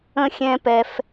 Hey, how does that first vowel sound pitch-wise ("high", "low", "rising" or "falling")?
high